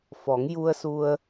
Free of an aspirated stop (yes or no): yes